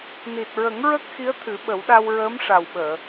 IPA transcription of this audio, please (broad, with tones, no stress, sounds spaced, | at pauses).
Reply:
n i˨˩ t̚ ɹ ə˨˩˦ ŋ ɹ ə˦˥ k̚ x i˧˥ ə̯ t̪ʰ ɨ˨˩˦ ɓ ə˨˩˦ w ɗ a˧ w ɹ əː˧˥ m ʂ a˨˩ w ɓ əː˨˩˨